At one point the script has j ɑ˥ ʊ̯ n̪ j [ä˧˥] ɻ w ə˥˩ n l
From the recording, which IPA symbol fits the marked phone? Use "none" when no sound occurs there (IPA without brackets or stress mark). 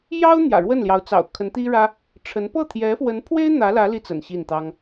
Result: ä̰˨˩